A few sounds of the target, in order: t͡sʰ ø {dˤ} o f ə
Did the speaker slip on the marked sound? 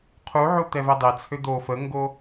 yes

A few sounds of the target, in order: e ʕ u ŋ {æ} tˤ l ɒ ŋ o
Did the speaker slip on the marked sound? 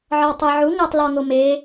no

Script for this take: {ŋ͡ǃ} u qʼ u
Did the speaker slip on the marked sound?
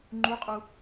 no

